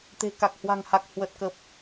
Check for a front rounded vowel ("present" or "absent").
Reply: absent